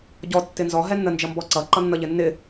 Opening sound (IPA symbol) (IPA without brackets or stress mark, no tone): ɟ